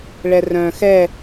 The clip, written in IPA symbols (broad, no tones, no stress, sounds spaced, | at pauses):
ɭ ɛ r œ̃ x ɛ